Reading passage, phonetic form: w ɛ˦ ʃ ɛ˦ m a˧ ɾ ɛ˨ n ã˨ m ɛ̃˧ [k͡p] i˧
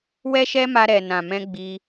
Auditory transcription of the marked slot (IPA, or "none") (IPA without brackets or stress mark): ɡ͡b